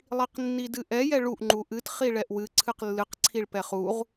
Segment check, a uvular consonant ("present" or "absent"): present